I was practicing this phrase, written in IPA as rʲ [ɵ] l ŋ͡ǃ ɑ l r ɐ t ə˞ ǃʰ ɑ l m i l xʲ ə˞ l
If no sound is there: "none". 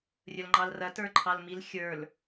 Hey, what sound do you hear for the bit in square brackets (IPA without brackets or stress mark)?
ɵ